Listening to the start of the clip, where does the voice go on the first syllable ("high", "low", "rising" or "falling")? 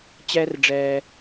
high